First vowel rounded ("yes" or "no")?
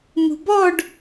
yes